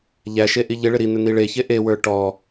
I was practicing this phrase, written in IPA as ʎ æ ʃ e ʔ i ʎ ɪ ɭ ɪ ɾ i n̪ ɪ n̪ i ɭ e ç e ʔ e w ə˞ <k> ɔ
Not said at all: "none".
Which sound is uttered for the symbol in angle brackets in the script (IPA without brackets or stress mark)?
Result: ʈ